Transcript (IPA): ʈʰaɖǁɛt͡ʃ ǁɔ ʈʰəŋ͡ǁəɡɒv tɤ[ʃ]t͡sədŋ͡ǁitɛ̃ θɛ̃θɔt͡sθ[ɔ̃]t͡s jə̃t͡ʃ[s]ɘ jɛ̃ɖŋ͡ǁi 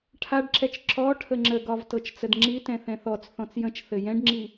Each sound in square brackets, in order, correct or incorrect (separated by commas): incorrect, correct, incorrect